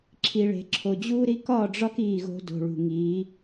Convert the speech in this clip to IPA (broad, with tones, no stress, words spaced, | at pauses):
ǁʰi˨ɭe̤˨ǁʰo˨ d͡ʑuː˦ɾi˦ kɒː˦˨ɖ͡ʐɒ˦k iː˦˨ɣo̤˦ do̤˨ɭṳ˨ŋiː˨˦